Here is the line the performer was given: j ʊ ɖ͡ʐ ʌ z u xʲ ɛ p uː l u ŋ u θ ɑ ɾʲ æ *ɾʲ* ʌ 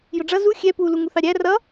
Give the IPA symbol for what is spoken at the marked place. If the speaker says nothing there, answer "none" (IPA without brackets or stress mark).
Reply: r